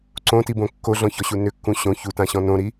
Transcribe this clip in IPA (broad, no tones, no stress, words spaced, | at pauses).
ǀõtibõ kːoɮɔ̃çɔɕu nʏkːũ ɕõ çutãɕɔ̃ nõɾi